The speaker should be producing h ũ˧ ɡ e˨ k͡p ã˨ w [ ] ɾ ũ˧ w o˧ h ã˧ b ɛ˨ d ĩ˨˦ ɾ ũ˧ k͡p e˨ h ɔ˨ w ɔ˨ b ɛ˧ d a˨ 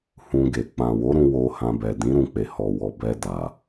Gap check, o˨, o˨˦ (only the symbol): o˨˦